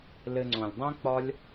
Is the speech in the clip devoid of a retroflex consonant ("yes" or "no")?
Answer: yes